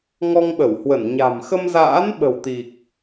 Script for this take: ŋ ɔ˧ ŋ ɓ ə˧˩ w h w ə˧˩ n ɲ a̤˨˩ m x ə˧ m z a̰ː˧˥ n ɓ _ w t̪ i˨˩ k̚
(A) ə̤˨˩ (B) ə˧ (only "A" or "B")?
A